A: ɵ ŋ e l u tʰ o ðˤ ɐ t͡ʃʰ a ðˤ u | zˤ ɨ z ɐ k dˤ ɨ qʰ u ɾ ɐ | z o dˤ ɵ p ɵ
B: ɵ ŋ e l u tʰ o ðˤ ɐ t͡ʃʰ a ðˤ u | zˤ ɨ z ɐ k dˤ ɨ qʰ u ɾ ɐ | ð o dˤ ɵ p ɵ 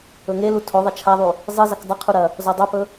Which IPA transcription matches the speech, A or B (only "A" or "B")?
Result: A